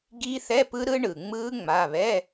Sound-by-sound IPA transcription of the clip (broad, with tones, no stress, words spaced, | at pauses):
ɡi˦˥θɛ˧˥˧pɯ˦˥ ɾɯ˦˥ɳɯ˩ŋ͡mɯ˦˥ ŋ͡ma˩˧˩ βɛ˧˥˧